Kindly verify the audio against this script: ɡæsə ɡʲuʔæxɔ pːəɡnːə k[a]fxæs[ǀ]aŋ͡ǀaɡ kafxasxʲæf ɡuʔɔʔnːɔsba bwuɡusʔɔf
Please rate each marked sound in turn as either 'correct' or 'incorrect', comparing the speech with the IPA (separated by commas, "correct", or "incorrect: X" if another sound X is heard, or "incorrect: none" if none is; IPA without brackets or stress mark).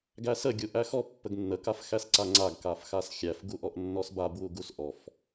correct, correct